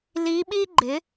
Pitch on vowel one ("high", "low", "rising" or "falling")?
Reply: rising